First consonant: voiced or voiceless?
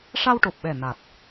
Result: voiceless